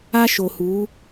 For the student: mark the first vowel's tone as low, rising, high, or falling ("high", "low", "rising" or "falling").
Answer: high